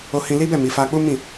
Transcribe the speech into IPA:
o˧ hĩ˧li˦bɛ˦˨ mi˨˦fa˦ k͡pu˦mĩ˦˨

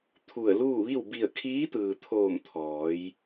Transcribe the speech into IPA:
t̪ʰu˧˩ə̯luː˥˨ ʋi˥˨w bi˧˩ə̯kʰiː˧˥t̪ɯː˩t̪ʰoː˧˩m t̪ʰɔː˩˧j

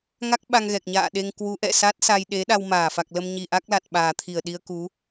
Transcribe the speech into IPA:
ŋa˦˥k̚ɓa˧ŋɣɛ˨˩k̚ɲa̰ː˧˨ ɗe˧ŋkwu˨˦ʔɛ̰˧˨ sa˦˥t̚sa˧jɗe˨˦ɗa˧w maː˧˩ fa˨˩k̚lə˧mɲi˨˩ ʔa˦˥k̚la˨˩t̚ɓaː˨˩t̪ʰi˧˩ə̯ ɗi˧ə̯ku˨˦

